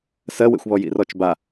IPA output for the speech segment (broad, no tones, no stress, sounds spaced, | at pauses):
s ɜ w ḛ xʷ β ɔ j ḭ r ɔ t͡ʃ b a